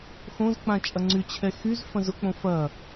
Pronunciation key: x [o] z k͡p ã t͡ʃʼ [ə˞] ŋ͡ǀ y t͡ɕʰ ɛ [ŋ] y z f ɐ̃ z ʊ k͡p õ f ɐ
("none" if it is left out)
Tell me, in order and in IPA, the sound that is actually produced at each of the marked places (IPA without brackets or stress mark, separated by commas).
õ, ɐ, x